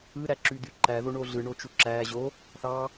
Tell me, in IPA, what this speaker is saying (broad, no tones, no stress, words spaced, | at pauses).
ɯɾæǁyd̪y ǃæðoɳo ɮɯɳot͡ʃu ǁæ ʑo | θɑ